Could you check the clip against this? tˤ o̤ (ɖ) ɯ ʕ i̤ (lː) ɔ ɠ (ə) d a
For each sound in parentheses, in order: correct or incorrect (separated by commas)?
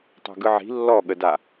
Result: incorrect, correct, correct